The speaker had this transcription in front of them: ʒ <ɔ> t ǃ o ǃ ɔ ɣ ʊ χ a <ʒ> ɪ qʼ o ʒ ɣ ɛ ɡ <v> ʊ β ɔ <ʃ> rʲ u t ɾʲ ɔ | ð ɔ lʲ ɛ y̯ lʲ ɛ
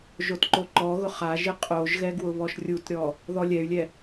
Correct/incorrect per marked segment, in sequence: incorrect: o, correct, incorrect: w, correct

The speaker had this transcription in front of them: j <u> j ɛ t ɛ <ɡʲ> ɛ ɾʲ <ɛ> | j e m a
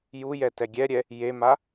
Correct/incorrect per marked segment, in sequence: correct, correct, correct

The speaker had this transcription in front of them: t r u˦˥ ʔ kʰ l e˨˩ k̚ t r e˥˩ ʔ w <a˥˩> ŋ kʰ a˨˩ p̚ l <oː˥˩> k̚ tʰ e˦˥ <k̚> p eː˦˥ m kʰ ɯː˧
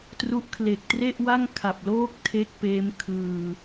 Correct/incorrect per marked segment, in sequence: correct, correct, correct

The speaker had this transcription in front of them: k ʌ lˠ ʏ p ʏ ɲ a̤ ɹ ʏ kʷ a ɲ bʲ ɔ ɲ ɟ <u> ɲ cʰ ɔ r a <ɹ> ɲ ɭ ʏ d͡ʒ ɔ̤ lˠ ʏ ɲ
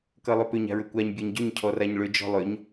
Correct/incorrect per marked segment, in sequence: incorrect: ʏ, incorrect: none

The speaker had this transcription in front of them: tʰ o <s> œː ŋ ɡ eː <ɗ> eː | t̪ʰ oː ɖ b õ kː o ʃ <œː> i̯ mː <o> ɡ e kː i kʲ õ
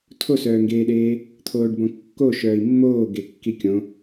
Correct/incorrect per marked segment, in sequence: correct, correct, correct, incorrect: oː

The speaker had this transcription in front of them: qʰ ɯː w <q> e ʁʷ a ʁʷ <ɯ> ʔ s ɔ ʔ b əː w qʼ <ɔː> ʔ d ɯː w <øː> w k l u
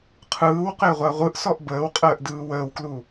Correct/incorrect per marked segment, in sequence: correct, correct, incorrect: əː, incorrect: əː

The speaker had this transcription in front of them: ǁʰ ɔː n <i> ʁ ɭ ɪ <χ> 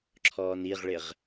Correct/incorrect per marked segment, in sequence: correct, incorrect: ʁ

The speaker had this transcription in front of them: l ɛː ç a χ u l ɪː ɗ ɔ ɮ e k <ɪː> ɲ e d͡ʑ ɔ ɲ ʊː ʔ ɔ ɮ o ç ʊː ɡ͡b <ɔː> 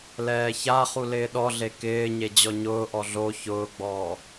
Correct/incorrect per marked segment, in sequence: correct, correct

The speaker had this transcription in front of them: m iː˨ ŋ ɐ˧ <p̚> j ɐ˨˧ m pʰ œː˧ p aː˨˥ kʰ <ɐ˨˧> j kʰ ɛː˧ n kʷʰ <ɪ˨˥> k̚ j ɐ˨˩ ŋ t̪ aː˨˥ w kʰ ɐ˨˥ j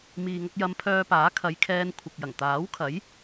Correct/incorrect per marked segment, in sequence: incorrect: k̚, correct, incorrect: ɪ˨

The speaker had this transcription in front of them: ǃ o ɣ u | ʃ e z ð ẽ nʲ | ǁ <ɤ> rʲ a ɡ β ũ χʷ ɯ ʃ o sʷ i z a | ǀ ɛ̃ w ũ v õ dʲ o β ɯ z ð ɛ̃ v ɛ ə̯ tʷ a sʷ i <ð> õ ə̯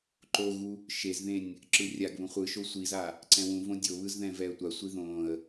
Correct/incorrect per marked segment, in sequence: incorrect: ɯ, correct

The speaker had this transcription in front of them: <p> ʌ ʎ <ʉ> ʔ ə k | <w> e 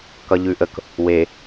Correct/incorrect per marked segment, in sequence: incorrect: k, correct, correct

